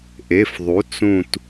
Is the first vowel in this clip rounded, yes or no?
no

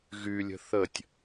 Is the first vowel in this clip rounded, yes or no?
yes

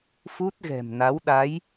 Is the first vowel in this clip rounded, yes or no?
yes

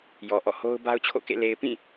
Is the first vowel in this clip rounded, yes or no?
yes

